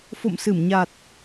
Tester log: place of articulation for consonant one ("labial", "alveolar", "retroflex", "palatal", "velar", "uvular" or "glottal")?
labial